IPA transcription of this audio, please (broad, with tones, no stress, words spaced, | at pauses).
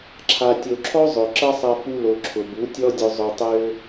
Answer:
ǁʰa˨tʲo˨ǁʰɔ˦ zˤʊ˨ ǁɐ˦sˤɐ˧ fu˧lo˨ ǁʰʊ˨bu˨˦tʲɔ˦dʲʊ˧ zˤʊ˧tˤø˦